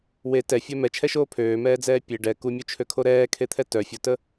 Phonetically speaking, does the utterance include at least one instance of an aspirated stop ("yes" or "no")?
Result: yes